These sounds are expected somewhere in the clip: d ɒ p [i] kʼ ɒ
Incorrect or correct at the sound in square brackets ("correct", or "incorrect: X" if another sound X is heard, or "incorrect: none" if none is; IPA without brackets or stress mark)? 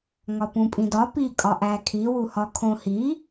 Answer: correct